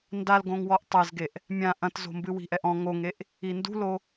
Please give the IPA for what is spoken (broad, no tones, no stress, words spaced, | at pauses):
ndalɡõŋ wɔʔtˤɛzɡeʔ | mʲã ʔɐ̃tzo̤mbɨ wi̤ʔɛʔɔ̃ ŋoŋeʔ | indṳlo